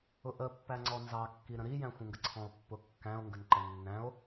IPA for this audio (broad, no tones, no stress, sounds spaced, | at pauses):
ʊ ʔ ə pː æ ŋ͡ǀ ɔ n z ɑ kː i ɾ ə̃ ɾ i j æ̃ xʷ ə̃ ŋ ɡ ə ǀʰ ɔ̃ o̯ pː ʊ kː æ̃ o̯ ŋ ɡ ə n ǃ ə nː æ̃ o̯